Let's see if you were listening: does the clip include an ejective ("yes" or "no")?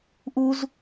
no